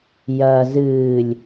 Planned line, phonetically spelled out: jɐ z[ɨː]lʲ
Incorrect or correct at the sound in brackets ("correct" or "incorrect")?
correct